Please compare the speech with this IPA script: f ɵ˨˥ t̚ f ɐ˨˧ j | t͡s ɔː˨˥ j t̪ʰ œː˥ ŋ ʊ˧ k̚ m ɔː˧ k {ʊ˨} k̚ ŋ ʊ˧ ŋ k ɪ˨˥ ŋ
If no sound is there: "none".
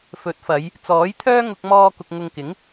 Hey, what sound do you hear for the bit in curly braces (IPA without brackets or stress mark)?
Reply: ʊ˨